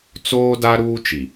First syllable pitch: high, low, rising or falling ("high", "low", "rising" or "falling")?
high